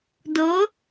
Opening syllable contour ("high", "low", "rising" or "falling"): rising